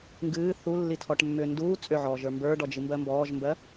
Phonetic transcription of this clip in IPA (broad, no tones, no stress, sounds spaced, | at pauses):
ŋ ɡ ɨː θ u lː i tʰ ɔ ʈ mː ʏː n d uː t͡sʼ ʏ ʕ ɔː ʒ ə˞ m b ə˞ ɖ ɔ d͡ʒ ɨ m b ɜ m b ɔː ʒ m b ɜ